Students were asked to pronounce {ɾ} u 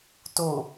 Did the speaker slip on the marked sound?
yes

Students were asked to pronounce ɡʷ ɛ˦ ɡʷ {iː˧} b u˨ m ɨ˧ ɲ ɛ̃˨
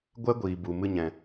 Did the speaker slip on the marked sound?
yes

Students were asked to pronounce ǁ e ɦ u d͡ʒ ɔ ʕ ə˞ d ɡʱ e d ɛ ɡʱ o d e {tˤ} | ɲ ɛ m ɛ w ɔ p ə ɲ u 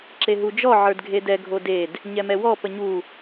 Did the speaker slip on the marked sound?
yes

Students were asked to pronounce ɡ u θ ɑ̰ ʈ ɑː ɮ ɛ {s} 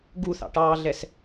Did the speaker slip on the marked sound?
no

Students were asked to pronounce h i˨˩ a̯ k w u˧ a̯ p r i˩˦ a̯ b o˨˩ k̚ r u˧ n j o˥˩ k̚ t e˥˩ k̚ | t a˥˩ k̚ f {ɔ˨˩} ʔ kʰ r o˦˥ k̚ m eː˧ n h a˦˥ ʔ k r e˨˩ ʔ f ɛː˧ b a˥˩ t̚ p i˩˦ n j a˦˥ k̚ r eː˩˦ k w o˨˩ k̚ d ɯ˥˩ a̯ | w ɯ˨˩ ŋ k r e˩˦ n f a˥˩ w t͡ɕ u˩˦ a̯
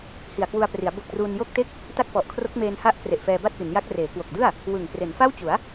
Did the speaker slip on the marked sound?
no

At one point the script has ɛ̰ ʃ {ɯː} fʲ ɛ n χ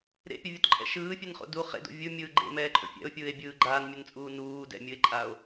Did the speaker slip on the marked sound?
no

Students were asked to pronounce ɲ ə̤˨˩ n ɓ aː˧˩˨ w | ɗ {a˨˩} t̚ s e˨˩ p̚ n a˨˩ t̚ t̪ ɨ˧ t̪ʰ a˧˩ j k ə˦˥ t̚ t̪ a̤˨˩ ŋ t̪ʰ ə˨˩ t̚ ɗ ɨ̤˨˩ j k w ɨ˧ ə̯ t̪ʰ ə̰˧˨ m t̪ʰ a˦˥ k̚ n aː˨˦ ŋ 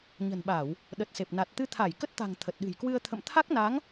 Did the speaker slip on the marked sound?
yes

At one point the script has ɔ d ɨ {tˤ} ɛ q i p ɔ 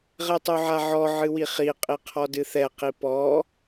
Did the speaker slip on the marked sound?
yes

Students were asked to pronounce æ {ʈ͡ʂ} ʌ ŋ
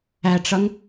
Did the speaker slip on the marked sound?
no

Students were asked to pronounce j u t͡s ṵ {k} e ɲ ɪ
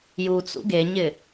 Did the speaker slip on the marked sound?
yes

